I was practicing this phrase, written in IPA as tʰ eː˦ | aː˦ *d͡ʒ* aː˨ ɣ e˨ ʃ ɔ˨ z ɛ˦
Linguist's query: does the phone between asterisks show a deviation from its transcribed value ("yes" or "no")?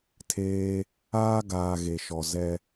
yes